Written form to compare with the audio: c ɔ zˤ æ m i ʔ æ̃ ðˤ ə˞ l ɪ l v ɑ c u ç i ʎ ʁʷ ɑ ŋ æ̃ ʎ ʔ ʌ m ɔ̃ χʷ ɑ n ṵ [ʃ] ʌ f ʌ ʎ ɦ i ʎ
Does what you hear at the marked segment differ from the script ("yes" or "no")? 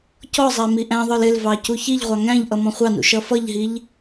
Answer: no